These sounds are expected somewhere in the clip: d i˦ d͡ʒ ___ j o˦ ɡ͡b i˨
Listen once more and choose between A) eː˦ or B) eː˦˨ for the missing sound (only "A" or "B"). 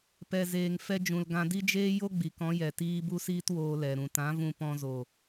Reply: A